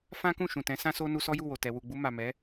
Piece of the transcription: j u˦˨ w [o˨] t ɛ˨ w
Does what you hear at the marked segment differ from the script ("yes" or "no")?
no